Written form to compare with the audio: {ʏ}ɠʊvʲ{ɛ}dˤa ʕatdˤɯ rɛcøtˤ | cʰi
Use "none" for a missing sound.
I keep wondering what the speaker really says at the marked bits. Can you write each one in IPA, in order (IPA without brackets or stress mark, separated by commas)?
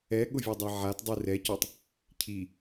ɛ, ø